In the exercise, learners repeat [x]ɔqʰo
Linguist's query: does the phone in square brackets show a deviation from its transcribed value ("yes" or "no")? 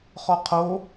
yes